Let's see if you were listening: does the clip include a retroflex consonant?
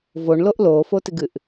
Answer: yes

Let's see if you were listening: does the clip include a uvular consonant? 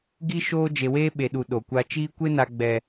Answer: no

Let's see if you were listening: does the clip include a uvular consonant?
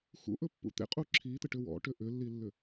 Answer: yes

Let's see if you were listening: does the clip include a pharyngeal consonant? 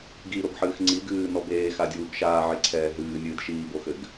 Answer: yes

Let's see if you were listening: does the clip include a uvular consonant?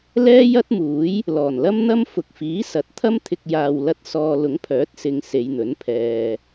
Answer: no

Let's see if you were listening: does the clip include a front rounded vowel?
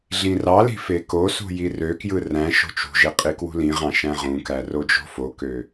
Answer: yes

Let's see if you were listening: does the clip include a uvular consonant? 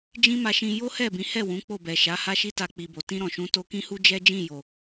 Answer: no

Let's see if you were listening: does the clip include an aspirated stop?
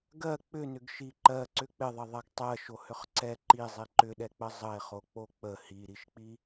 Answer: no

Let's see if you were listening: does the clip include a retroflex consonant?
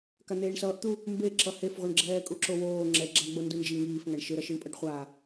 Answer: yes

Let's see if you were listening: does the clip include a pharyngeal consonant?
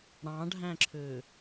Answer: no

